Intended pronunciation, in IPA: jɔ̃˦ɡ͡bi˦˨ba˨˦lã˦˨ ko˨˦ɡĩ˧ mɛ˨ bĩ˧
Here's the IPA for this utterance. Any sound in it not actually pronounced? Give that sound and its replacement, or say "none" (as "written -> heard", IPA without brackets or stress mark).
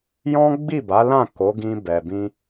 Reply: m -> b